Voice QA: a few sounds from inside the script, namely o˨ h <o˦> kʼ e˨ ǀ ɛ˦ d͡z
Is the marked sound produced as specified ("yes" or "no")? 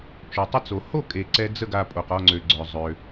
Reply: no